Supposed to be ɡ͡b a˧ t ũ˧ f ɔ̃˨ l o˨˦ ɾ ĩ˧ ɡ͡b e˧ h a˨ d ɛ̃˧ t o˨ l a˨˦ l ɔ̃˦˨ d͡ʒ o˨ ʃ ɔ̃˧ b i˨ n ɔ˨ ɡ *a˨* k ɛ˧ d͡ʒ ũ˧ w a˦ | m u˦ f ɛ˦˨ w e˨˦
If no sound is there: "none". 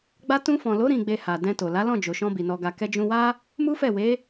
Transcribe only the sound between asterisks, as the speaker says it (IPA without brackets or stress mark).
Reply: a˨